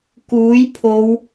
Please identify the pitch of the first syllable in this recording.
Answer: rising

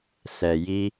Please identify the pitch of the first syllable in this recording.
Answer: low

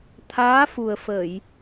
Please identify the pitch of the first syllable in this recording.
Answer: rising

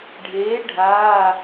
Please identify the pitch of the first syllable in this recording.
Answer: rising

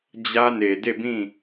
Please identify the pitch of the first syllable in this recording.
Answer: high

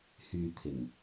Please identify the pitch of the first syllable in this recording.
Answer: low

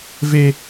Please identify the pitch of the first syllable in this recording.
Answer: high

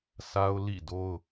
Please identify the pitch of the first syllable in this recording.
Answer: high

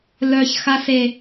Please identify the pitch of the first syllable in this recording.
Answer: low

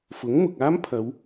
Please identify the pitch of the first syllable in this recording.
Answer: rising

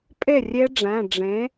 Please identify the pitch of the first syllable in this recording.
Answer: falling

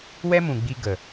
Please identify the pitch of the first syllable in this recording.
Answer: high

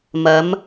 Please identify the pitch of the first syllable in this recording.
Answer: rising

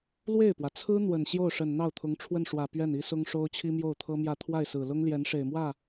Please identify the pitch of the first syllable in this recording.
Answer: falling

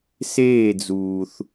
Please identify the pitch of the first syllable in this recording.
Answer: falling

